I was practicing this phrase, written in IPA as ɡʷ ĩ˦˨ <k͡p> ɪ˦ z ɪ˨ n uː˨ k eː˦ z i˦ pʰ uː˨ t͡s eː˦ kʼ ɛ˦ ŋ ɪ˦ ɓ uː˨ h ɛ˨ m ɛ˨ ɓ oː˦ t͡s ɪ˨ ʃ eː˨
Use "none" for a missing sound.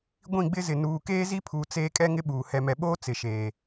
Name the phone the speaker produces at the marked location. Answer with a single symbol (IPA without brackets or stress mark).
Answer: ɡ͡b